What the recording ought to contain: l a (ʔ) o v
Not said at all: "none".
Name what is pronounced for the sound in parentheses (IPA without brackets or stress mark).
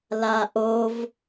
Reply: ʔ